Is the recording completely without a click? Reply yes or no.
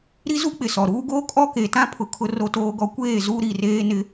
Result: yes